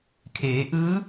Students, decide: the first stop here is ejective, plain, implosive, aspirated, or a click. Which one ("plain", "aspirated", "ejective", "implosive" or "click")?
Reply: aspirated